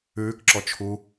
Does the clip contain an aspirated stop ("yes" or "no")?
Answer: yes